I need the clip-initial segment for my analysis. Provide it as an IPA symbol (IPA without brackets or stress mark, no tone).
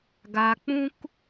ɡ